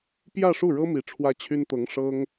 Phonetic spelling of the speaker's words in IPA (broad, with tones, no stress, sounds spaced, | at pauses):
p j ä˥˧ ʂ u˥˩ ɻ ɤ˥ m i˧˥ ʈ͡ʂʰ w ä˥ t͡ɕʰ y˥ n t̪ ɤ˧˥ ŋ ʂ ɤ˥ ŋ